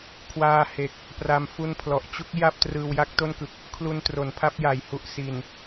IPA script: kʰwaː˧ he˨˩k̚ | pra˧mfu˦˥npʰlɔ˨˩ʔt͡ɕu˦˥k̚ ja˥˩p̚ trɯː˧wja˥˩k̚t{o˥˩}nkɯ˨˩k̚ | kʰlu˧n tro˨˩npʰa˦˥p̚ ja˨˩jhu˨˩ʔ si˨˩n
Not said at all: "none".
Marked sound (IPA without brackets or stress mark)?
o˥˩